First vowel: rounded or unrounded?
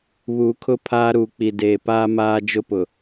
rounded